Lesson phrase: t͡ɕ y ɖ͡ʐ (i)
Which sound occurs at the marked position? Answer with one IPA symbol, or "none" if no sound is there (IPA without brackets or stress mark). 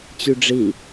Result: i